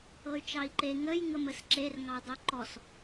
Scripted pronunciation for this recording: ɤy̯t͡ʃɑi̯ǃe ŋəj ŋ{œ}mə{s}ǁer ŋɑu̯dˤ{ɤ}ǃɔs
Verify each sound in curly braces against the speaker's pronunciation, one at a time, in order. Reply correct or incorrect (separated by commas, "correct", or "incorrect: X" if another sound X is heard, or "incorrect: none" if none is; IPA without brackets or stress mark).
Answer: incorrect: ə, correct, incorrect: o